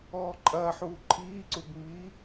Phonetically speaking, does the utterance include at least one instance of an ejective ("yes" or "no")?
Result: yes